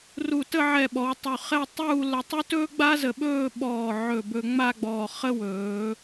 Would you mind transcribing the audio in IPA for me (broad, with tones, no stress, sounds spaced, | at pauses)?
r u˧˩ t ə˥˧ ʕ ɛ˧˩ ɓ ɔ˩˧ w tˤ u˧˩ χ ɛ˥˧ tˤ uː˥˧ l ə˧ tˤ u˥ t ɵː˥ ɡ͡b a˥ z ə˧ ɓ ɵː˥˧ ɓ ɔː˧˩ ʕ ɵ˧˩ b ɵ˧ ŋ͡m a˥˧ ɡ͡b ɔː˧˩ χ ə˥ w ɵː˩˧